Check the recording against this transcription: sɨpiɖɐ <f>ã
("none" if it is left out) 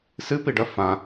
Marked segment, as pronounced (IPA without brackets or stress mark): f